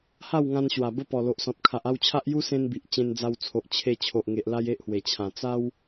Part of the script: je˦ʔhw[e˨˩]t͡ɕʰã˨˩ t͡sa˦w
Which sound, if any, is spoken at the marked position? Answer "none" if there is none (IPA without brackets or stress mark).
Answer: e˨˩